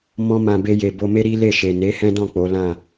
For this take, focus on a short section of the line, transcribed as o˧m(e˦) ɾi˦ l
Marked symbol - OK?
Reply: yes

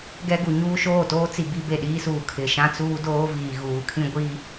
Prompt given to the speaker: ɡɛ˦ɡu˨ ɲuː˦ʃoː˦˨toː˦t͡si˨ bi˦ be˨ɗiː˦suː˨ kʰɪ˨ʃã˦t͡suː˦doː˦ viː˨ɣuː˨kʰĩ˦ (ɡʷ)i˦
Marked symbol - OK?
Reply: yes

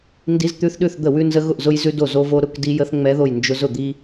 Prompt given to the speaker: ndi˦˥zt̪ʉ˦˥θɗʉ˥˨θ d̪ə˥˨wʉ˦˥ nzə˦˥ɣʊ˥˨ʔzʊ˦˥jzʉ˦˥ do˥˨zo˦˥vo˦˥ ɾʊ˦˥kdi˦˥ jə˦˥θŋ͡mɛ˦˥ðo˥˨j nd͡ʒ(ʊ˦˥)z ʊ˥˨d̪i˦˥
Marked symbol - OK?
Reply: yes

